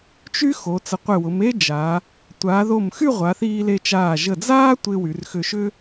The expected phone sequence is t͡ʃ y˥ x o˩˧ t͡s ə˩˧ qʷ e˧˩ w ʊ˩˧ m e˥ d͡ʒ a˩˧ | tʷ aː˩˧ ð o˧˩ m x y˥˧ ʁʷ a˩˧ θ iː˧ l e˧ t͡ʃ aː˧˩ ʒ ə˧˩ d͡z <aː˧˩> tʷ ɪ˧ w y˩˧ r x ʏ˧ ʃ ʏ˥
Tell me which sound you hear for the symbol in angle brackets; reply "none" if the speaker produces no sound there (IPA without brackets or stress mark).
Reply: aː˥